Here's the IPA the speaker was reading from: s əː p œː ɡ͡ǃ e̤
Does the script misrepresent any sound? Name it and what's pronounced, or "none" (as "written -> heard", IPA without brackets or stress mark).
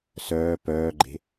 əː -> œː